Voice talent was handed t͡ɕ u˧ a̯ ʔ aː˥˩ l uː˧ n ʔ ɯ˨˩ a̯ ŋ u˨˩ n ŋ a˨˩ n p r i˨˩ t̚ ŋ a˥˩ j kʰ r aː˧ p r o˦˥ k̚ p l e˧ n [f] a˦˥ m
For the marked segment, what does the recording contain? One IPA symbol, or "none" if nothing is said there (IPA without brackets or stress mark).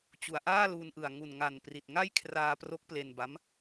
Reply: b